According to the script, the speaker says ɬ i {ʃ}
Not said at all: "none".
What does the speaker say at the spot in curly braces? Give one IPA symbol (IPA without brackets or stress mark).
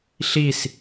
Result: s